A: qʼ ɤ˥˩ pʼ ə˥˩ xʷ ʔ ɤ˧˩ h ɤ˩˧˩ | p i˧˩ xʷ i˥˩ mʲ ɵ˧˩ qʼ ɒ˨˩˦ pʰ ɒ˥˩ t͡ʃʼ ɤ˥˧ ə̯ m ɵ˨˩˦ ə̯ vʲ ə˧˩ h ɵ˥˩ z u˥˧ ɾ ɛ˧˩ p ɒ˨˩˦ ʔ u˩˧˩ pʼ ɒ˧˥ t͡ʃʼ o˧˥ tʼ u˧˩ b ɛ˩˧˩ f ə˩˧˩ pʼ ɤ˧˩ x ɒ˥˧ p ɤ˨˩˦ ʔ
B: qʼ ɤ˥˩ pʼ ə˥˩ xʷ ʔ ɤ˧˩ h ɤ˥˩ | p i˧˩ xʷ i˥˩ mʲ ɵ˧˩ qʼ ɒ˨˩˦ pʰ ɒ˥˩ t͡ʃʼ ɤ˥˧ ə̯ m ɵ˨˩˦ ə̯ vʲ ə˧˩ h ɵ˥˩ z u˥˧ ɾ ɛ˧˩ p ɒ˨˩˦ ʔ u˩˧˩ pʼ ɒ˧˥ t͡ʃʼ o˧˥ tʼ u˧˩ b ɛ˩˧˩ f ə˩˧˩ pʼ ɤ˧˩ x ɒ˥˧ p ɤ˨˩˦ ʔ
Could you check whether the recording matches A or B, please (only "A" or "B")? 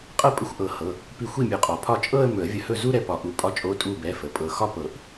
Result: A